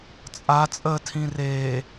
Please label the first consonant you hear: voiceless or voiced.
voiceless